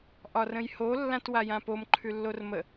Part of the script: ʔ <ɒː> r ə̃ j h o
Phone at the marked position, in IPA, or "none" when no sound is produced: ɒ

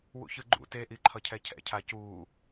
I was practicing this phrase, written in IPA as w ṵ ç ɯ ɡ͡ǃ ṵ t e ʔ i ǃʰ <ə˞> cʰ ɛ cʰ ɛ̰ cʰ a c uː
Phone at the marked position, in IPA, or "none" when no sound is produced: ʌ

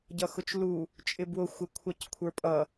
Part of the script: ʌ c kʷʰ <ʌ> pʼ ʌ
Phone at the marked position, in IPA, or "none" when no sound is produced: ə˞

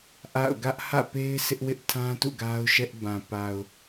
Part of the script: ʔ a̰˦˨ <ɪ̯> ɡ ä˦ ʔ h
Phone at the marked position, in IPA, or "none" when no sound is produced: ʊ̯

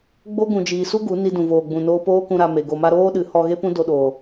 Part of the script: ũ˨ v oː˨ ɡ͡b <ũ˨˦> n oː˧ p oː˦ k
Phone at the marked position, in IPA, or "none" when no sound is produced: ũ˨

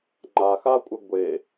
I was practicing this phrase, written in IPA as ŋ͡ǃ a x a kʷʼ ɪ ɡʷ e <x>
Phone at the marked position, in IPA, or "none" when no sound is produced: none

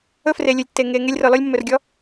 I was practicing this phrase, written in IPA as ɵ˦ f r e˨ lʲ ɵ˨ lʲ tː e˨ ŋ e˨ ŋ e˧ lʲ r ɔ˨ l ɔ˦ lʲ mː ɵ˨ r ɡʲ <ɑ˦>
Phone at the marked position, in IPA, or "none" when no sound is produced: ɔ˦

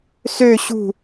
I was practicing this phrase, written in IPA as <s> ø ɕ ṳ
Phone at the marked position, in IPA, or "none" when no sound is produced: s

